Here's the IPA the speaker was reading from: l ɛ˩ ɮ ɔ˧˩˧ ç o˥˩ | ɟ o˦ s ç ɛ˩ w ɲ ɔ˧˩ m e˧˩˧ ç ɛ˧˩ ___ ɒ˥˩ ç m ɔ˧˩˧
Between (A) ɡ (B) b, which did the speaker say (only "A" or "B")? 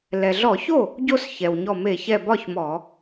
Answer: B